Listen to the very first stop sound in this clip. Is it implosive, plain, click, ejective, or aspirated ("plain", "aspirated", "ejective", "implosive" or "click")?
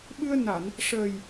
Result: implosive